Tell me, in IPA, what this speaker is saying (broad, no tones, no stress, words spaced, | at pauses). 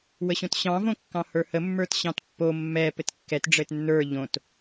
wəɕõtɕɑ̃ võkːɑ̃hə˞hə mːə˞tɕɑ̃tpːo mːɛ pɘtkːɛt ɖ͡ʐɘtnːə˞ ʎõt